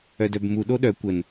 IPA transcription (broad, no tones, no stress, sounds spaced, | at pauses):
œ d œ b m u ɗ o ɗ œ kʷ ə n